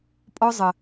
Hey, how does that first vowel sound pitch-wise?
high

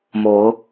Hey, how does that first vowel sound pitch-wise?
rising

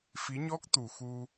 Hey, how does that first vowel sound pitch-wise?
rising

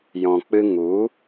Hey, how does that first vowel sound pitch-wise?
low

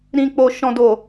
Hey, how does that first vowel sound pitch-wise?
low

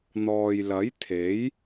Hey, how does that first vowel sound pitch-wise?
low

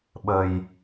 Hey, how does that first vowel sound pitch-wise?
low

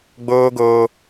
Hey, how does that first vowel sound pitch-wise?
high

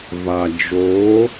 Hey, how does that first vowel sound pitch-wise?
low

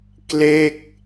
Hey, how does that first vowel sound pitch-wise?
falling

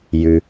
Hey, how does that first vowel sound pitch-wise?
low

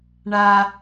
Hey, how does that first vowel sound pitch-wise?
low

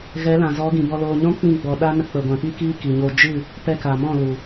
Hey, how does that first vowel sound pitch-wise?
rising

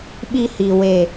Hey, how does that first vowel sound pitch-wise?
high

